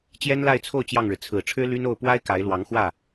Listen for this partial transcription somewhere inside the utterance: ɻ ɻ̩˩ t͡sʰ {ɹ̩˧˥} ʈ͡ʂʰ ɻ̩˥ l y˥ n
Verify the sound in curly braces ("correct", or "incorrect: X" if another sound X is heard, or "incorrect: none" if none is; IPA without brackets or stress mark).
incorrect: ɹ̩˨˩